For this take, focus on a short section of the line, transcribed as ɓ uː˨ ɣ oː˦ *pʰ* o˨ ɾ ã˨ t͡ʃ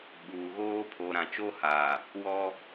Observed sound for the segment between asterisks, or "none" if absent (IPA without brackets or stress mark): pʰ